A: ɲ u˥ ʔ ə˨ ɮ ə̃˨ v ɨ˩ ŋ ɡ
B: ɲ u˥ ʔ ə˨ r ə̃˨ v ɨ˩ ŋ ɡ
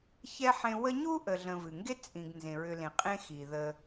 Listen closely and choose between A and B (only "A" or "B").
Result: A